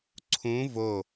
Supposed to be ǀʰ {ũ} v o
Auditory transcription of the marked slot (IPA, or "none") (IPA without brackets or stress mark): ũ